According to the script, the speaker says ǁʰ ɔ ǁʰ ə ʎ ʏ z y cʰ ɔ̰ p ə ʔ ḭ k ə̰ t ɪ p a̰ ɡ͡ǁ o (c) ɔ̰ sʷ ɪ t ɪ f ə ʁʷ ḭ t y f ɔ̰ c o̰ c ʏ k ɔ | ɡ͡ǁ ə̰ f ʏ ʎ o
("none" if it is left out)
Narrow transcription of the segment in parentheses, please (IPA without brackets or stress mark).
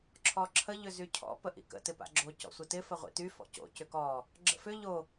c